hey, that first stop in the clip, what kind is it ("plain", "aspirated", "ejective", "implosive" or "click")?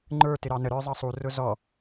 click